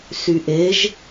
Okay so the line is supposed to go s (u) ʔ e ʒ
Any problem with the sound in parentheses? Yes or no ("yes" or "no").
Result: yes